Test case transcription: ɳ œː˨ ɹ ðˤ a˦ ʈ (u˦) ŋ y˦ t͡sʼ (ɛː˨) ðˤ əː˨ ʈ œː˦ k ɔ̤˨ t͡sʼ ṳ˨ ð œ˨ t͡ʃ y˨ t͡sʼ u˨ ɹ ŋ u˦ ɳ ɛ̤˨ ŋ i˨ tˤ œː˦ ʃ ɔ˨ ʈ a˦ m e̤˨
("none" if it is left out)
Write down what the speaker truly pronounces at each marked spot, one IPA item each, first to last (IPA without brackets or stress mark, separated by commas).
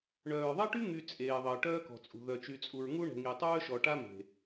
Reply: y˦, eː˨